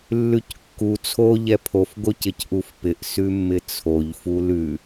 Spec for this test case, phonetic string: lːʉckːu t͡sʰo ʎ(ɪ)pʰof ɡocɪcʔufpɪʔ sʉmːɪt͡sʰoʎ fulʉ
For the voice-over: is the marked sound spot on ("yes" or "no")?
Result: no